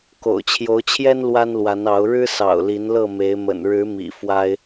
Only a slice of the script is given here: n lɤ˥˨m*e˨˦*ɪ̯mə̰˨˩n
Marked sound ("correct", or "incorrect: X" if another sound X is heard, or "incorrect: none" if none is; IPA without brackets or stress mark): correct